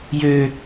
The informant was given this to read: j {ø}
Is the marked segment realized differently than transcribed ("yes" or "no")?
no